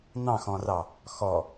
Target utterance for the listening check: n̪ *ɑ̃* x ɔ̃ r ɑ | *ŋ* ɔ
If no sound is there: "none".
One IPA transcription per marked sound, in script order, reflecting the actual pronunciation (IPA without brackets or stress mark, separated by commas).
ɑ̃, x